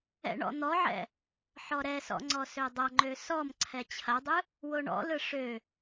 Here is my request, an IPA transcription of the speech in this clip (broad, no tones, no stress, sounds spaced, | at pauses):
ɛ̰ ɳ ɔ̰ n̪ ɔ ʕ ɛ̰ | ħ ɔ ɾ ɛ s ɔ̰ ŋ͡ǀ ɔ s ø dˤ ɐ ŋ͡ǃ ø s ɔ m ǀʰ ɛ t͡ɕʰ ɐ dˤ ɯ | w o ɳ ɔ̰ l ɯ ʂ ø